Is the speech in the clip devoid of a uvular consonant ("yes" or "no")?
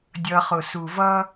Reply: no